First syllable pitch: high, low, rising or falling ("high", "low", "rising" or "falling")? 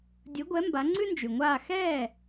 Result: rising